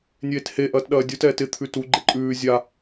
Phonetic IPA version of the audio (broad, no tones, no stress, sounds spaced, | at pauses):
nʲ eː t h e ʔ ɐː t ɗ ɐː dʲ u t ɛː t ɪ t̪ʰ ʉ t u ɡ͡ǃ e ǃʼ ʉː zʲ a